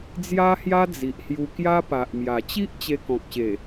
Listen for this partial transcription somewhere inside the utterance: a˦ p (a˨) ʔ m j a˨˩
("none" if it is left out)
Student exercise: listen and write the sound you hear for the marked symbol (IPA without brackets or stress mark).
a˨